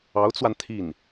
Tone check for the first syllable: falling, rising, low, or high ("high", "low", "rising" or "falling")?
rising